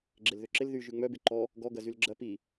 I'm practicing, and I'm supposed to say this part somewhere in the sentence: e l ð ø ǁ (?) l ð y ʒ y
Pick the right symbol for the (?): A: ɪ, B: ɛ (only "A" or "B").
A